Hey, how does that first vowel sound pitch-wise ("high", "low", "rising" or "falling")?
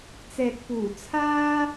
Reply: low